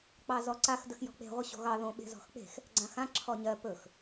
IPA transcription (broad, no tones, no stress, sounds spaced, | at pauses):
k͡p ɑ z ɔ ǀ a x d ə x j ɔ̤ k͡p e̤ ʁʷ ə ɕ o̤ ɣ ɑ ð õ ɓ e̤ z ɔ̤ x k͡p e̤ x | ɡ͡ǀ ã x ã ǁʰ ɔ ɲ ɜ p ɵ x